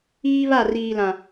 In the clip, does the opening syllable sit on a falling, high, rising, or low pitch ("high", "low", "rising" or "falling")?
high